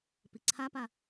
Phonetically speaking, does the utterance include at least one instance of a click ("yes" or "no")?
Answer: yes